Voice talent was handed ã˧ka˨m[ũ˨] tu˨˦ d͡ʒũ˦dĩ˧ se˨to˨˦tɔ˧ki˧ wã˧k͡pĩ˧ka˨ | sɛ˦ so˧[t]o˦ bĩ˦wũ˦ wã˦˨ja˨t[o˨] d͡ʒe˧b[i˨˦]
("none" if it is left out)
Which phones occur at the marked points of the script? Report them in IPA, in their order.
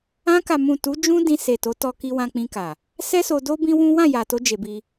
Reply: ũ˨, d, o˧, i˦

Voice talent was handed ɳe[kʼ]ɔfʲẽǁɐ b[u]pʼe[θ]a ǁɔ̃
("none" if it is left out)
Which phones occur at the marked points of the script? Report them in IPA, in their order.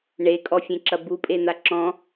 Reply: kʼ, u, n̪

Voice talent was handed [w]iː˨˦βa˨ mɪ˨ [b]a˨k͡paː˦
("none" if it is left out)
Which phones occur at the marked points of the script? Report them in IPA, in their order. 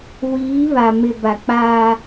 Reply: w, b

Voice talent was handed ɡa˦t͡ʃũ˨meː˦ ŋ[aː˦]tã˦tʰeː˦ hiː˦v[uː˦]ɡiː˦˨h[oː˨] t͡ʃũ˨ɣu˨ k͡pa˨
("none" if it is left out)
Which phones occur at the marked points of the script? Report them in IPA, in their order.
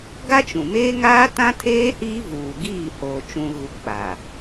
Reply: aː˦, uː˨, oː˨

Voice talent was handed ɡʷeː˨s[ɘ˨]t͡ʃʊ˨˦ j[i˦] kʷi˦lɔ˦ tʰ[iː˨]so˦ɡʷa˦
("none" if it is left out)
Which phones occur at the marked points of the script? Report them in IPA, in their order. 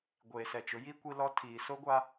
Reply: ɛ˨, i˦, iː˨

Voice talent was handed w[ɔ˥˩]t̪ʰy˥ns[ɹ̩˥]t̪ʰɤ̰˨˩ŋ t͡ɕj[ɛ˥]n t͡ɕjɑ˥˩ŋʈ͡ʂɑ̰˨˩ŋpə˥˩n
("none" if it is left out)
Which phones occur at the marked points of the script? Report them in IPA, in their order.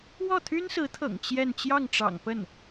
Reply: ɔ˥˩, ɹ̩˧˥, ɛ˥˧

